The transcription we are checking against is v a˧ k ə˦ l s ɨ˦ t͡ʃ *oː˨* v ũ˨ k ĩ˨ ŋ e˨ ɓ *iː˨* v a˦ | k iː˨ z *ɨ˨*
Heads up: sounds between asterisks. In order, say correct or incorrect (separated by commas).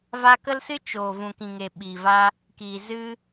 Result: correct, correct, incorrect